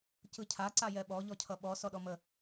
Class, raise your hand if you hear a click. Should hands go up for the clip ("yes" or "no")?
yes